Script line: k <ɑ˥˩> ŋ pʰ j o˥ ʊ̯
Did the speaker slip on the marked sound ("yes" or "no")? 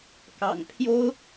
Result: yes